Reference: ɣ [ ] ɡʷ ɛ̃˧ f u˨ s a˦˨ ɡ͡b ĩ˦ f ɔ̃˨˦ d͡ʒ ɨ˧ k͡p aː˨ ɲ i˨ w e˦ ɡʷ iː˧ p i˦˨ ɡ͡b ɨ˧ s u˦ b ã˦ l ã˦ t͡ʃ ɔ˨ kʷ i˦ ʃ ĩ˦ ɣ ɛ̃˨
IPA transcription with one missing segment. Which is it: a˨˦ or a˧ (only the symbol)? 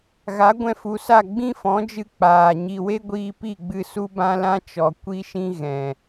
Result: a˨˦